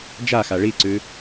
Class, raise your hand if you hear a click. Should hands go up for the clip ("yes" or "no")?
yes